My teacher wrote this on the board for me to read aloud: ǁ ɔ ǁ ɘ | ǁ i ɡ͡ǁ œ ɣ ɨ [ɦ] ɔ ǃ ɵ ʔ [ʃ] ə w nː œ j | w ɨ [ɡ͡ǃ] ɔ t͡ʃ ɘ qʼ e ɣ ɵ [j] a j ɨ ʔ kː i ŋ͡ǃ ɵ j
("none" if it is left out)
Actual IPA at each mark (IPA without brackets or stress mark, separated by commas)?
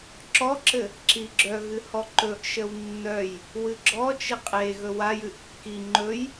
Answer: h, ʃ, ɡ͡ǁ, w